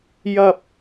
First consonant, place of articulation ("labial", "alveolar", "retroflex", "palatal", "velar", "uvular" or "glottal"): palatal